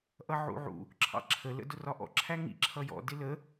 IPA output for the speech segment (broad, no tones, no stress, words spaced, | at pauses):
ʔʌʕṵʕṵ | ǁʰɑ̰ǁʰə lə̰dʊrɒʔɔ̰ ǁʰæŋḭ ǁʰʌjɔ̰ dɪlə